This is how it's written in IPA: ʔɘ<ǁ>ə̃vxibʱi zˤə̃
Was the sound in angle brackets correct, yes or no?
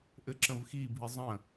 yes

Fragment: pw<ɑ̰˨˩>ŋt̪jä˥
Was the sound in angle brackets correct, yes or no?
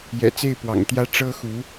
yes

